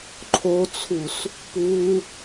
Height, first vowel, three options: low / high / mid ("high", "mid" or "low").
mid